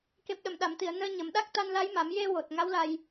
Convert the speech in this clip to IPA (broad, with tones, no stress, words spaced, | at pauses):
ke˨˩p̚ɗə˨˩˨m ɗa˨˩˨mt̪i˨˩˨ə̯ nəː˧ɲə˨˩˦mɗa˦˥k̚ t̪a˧nla˧˥jma˨˩˦m je˧wo˨˩t̚ ŋa˧˥wla˧j